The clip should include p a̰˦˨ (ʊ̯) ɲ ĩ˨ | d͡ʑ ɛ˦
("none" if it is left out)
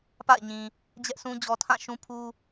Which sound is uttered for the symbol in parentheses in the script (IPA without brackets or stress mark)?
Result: ɪ̯